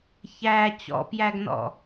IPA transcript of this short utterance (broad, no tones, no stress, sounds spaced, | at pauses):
ç æ t͡ɕ ɔ̰ p j æ ɡ n ɔ̰